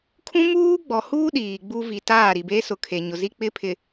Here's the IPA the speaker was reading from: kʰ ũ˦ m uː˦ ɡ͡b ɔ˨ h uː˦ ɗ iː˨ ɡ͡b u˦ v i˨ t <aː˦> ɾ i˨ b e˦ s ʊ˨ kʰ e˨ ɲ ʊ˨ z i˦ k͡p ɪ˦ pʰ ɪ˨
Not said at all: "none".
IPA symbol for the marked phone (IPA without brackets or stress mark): aː˦˨